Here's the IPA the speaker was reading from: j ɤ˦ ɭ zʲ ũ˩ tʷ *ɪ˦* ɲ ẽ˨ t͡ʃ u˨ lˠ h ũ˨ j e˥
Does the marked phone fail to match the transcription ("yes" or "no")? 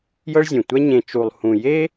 yes